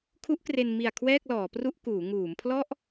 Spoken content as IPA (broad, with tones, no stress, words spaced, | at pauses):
kʰu˦˥ʔkre˧n mi˨˩a̯ kʰwɛː˥˩k̚lɔː˩˦pru˥˩ʔ kuː˩˦ ŋuː˩˦mpʰlɔ˥˩ʔ